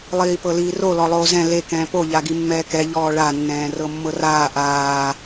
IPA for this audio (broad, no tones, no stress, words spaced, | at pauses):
lˠiːpɤliːro lɔlˠoːzɛ̃ le kɛ̃ːpo ʎaɡimːɛːkɛ ʎɔːɭa nːɛ̃ːrɤmːɤraː ʔaː